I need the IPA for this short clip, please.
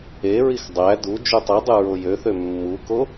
e ɹ i x dˤ æ d u d͡ʒ u tˤ ɯ dˤ ɯ ɹ o j ø θ ø mː u k o

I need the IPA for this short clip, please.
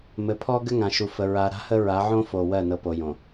m ɘ˨ pʰ ɔ˦ ɡ ɘ˦ ŋ ã˨ ʃ u˨ f ə˨ ɹ a˨ ɾ a̤˦ h ə˦ ɹ a˨˦ ʕ õ˦ f o˨ w ɜ˦˨ n ɤ˨ p o˨ j õ˨

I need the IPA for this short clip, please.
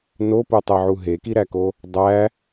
n o p u tˤ e ʕ u ɦ e k i ɾ æ k o | dˤ æ

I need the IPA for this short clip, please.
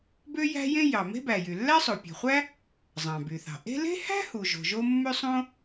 b ø˥ j æ̤˥ j ẽ˥ j ɑ˩ m e̤˥ b æ˩ j y˩ lː æ˥ sˤ o˩ pʲ ɑ̤˩ χʷ æ˥ | zˤ ɑ̃˩ b y˩ θ ɑ̤˩ ʔ e̤˥ l e̤˥ h æ̤˥ h u˩ ʒ o̤˩ ʒ o˥ mː ø˥ sˤ õ˥

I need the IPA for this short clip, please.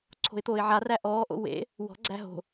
ǀʰ o̤ ɪ̯ t̪ oː ɪ̯ ʕ a r æ ʔ ɔː ʔ o̰ w ḛ | w ɔ̤ ɡ͡ǀ æ ɦ o̤

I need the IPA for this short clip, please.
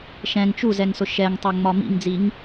ʃ ɛ̃ ŋ t͡ʃ u z ɛ ŋ s ʊ ʃ ɛ ŋ tˤ ɛ ŋ͡m ɒ m ḭ ŋ d͡z i ŋ

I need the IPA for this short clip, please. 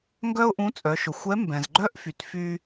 ŋ ɡ œ˥ ʊ̯ ʔ ũ˧˥ t͡sʼ œ˩˧ ʃ ʊ˩ xʷ ɛ˧˥ m b ɛ̃˩ z ɡ͡ǃ œ˥ ʔ f y˩ t f y˧

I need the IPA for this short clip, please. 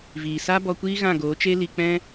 v iː˨ s a˦ b ɔ˧ kʷ iː˦ ɣ ã˦˨ ɡ oː˨˦ t͡ʃ e˦ l i˧ k͡p ɛ̃˦

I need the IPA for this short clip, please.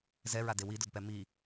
z ɛ ɹ a d e w i d ʊ d p ɛ m i

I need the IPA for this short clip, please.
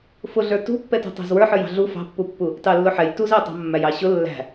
f ʊ ɮ ə˞ t ṳ pː ɛ t ṳ tˤ æ̤ z w ə˞ ħ ə˞ j ɑ̤ ɮ u f ɑ̤ pː u pː u | t ɑ lː ʊ ħ ɛ j t u z æ tˤ ɑ̤ mː æ j ɑ ɕ ʊ lː æ̤

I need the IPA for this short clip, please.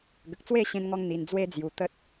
ɡ ə˨ k̚ t͡s w e˥˧ ɕ ẽ˧ n ŋ ɔ˧ ŋ n̪ i˧ n d͡z w e˦ d͡z j u˧ t̪ ə˦ t̚

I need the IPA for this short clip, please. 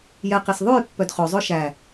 j ɛ q i s ðˤ ʉ j pː œ d χ ɵ zˤ ɵ ʃ æ

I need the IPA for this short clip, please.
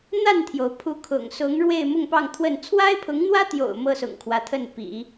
n̪ a˥˩ n t̪ʰ j o˩ ʊ̯ pʰ u˧˥ kʰ ʊ̰˨˩ ŋ s ʊ˧˥ ŋ ɻ w e˥˧ ɪ̯ m ʊ˥˧ ŋ p ɑ˥˧ ŋ t̪ʰ w ə˥˩ n t͡sʰ w a˥ ɪ̯ pʰ ʊ˧˥ ŋ n̪ w ä˥ t̪ j o̰˨˩ ʊ̯ m ɤ˥ s ʊ̰˨˩ ŋ kʰ w ä˦ t̪ʰ ə˥˩ n p ḭ˨˩˦

